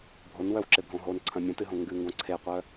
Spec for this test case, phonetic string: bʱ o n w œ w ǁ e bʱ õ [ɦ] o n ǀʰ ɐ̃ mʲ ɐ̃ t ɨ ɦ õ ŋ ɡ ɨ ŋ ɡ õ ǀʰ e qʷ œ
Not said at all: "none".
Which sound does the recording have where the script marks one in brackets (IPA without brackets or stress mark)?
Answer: ɦ